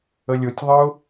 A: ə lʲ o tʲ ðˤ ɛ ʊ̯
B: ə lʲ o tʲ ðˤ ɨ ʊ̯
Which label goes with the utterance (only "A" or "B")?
B